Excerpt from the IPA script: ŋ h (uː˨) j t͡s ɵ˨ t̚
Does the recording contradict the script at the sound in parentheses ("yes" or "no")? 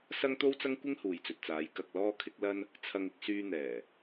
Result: no